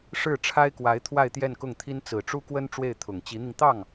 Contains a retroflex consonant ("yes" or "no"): yes